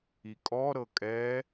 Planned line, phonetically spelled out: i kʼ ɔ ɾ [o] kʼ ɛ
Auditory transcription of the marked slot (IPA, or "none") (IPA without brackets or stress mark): ɤ